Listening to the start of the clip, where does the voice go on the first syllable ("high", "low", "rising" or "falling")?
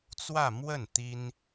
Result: falling